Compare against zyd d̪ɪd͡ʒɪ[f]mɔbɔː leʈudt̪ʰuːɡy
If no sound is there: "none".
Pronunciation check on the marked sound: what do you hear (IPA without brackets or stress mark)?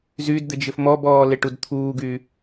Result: f